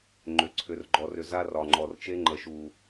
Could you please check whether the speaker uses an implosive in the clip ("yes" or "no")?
no